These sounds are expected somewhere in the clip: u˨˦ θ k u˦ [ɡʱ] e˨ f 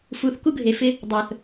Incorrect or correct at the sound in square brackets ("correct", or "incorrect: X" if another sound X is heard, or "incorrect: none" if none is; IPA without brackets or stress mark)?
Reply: correct